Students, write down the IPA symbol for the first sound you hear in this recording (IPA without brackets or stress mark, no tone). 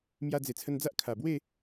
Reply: m